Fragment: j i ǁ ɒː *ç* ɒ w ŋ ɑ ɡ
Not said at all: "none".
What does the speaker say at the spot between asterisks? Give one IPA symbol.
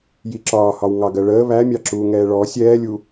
h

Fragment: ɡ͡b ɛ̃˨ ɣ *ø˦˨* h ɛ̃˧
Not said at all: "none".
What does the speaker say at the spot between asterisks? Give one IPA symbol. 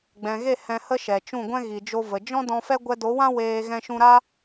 e˦˨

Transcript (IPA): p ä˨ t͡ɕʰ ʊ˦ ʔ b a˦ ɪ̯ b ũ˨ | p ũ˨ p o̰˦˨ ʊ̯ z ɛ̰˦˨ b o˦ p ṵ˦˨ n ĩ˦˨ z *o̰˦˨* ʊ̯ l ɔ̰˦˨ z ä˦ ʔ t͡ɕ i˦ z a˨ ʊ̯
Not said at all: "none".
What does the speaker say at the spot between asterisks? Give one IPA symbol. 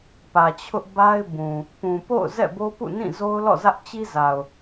o˦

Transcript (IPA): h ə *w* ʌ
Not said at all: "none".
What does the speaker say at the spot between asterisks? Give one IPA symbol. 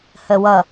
w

